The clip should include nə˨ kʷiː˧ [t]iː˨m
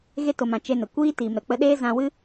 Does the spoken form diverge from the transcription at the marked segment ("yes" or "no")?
no